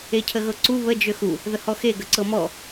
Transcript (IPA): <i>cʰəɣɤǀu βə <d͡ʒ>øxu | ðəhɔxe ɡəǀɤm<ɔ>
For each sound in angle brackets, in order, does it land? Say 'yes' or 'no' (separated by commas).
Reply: no, yes, yes